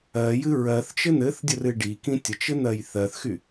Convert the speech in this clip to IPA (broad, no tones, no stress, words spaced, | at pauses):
ɜjɨ ɹɜθ t͡ʃɘn̪ɘθdʲər ɨɖikĩ tʲət͡ʃɘ n̪ɜjθɜθxy